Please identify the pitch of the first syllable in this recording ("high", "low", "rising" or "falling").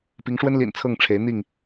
rising